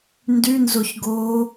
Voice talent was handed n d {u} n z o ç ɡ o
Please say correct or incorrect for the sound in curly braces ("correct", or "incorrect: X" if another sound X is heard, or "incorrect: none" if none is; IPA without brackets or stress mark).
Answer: incorrect: y